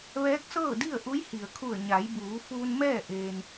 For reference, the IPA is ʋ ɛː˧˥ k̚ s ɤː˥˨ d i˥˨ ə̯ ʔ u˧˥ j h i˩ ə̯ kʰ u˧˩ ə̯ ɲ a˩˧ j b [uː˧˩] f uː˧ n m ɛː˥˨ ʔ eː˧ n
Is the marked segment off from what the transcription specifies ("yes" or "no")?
yes